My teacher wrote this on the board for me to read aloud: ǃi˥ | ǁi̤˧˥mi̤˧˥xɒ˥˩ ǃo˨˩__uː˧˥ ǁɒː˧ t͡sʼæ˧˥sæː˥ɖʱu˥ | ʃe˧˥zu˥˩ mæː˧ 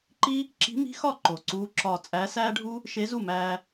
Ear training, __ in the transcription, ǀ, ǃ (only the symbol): ǀ